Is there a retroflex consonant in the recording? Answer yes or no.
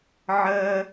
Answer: no